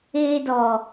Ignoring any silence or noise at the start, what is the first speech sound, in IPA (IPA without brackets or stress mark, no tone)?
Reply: eː